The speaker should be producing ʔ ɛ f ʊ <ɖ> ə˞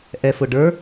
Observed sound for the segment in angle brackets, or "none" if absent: ɖ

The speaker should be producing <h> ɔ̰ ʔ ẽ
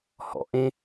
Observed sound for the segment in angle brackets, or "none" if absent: h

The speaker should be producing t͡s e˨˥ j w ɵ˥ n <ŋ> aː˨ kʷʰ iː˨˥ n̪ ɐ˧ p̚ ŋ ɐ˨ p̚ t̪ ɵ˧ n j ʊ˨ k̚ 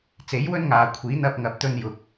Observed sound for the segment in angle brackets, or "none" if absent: ŋ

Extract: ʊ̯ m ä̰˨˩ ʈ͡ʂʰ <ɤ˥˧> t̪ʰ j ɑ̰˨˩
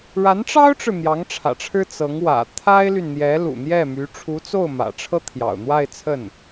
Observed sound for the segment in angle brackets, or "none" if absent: ɤ˥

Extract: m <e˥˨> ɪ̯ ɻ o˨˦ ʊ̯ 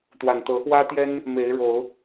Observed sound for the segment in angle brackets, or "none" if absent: e˨˦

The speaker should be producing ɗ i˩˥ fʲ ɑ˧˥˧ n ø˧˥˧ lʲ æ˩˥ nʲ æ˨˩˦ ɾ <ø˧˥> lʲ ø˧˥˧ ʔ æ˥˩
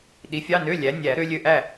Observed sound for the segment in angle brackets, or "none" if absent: ø˧˥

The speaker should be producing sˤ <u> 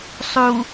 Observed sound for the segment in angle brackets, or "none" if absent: u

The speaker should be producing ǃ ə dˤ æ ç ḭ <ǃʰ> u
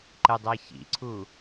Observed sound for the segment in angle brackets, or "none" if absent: ǀʰ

